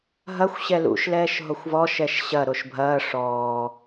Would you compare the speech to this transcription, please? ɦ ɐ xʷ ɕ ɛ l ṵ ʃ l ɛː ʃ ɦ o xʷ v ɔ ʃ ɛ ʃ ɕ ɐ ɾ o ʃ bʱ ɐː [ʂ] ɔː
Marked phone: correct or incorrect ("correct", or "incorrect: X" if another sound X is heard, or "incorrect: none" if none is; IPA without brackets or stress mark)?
correct